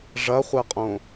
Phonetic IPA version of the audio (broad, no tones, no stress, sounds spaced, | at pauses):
ʐ ɐ χʷ ɛ qʼ õ